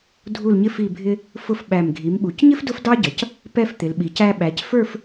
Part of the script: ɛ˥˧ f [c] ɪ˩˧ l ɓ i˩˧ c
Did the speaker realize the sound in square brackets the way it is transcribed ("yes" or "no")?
no